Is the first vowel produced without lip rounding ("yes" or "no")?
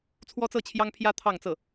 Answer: no